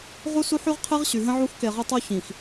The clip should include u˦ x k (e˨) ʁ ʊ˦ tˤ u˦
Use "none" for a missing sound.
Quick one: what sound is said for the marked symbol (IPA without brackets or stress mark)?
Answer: e˨